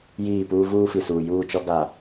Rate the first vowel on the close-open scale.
close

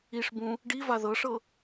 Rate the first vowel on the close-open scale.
close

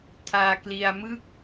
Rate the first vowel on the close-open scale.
open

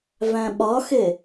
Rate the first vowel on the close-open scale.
open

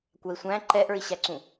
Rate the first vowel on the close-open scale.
open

